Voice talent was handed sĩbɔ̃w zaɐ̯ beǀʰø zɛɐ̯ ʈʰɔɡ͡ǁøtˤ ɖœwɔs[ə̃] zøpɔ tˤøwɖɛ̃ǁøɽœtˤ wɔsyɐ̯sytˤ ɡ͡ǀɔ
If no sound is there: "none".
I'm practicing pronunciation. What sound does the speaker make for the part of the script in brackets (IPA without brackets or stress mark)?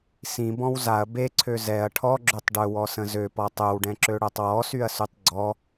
ə̃